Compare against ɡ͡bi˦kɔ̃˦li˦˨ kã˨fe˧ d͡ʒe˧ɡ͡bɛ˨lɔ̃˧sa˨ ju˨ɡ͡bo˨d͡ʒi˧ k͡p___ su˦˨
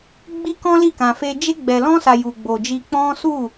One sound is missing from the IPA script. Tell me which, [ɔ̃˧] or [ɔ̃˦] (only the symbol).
ɔ̃˦